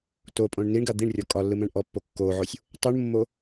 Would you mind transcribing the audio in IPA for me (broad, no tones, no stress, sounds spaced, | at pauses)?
t o pʼ õ ɳ n i ɳ ɡ a d̪ i ɳ rʲ ɔ kʼ ɒ lː ɯ m ɛ̃ ɳ ʔ ɔ pː o kː o ʕ o sʲ | tˤ u ɳ mː o